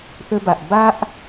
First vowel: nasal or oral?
oral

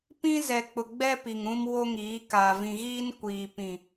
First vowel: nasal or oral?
nasal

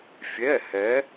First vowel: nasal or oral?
oral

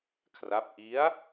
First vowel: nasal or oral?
oral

